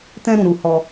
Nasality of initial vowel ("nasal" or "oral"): nasal